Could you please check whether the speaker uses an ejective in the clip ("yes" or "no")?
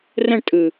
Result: yes